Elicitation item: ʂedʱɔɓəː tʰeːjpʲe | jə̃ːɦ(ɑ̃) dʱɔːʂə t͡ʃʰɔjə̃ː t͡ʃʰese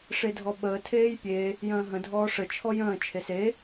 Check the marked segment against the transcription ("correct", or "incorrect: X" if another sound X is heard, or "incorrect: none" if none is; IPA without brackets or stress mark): incorrect: ə̃